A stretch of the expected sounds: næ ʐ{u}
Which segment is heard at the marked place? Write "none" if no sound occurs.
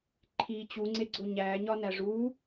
u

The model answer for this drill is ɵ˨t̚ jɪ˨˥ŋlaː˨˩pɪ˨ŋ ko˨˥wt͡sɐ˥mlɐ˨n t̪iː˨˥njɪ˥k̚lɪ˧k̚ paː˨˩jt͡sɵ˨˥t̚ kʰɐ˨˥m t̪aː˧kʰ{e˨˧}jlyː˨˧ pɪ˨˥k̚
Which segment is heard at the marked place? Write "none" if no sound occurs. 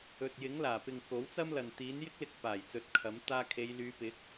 e˨˧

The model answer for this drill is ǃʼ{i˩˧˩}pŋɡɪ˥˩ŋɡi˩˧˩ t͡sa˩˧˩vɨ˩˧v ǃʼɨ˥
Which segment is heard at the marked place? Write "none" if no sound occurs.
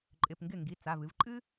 ɪ˩˧˩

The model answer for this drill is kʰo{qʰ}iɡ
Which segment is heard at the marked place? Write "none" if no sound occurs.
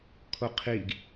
qʰ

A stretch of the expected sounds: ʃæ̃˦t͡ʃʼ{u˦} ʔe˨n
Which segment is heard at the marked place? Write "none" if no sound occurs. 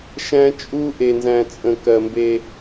u˦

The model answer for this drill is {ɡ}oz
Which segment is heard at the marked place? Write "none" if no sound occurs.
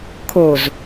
kʰ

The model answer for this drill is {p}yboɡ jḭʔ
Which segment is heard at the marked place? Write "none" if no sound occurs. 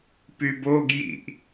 p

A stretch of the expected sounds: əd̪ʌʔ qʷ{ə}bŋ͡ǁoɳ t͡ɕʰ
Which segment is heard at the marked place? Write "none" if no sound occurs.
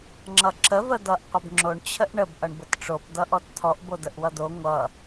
ə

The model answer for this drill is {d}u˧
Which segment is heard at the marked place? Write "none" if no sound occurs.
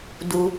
d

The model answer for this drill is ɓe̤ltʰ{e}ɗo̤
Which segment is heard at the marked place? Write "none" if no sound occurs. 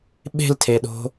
e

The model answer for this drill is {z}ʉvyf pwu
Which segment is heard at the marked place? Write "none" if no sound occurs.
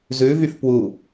z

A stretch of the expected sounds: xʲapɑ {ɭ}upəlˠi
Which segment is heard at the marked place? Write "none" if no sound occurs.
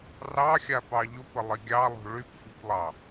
ʎ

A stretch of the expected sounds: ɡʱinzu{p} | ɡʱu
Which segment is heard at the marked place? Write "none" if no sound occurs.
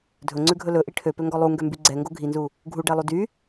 none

